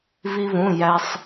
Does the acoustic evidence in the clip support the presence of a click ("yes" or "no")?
no